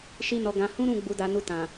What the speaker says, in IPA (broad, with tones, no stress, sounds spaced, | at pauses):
ʃ i˦ n ɔ˧ ɡ ã˧ h ũ˦ ɾ ũ˦˨ ɡ͡b u˧ d a˧ n u˧ t ã˨